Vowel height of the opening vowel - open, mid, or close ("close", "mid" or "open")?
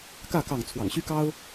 open